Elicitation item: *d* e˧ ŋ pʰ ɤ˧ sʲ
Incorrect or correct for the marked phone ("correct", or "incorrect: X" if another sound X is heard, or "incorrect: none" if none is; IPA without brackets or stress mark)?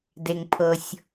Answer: correct